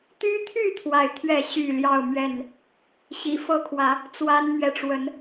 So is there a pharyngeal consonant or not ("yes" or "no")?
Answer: no